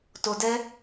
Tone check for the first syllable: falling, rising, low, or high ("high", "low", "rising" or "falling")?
low